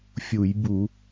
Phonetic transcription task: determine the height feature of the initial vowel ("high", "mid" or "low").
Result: high